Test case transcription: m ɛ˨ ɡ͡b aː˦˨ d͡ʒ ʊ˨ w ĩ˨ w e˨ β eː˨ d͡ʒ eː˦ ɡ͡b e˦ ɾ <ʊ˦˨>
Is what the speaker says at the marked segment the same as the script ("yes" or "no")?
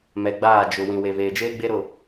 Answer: yes